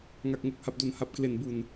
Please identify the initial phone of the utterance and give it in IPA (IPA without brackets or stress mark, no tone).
ŋ